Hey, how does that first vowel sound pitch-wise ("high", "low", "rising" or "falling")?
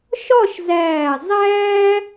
falling